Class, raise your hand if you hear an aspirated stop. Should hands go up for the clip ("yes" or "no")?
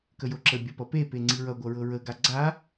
no